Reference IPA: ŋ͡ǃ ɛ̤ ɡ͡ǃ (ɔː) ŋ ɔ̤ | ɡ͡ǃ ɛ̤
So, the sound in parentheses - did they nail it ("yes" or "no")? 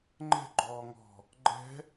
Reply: yes